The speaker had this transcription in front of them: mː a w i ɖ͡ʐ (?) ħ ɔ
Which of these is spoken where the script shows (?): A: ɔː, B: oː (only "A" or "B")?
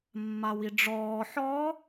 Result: A